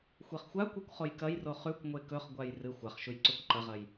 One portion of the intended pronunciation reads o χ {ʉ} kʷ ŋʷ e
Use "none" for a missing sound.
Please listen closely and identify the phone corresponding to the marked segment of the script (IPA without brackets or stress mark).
ʉ